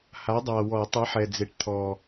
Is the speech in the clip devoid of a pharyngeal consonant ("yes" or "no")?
no